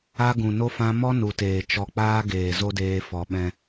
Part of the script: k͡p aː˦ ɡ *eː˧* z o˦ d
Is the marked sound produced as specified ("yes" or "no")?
no